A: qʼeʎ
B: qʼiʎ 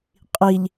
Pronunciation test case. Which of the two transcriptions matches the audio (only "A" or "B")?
B